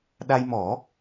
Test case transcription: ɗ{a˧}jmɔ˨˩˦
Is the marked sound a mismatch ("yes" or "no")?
no